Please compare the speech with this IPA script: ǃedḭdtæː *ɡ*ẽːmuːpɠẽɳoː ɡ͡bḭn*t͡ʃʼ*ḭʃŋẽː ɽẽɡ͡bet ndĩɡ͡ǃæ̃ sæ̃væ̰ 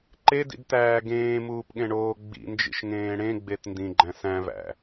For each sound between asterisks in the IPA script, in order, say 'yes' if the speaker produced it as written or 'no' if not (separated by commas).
yes, no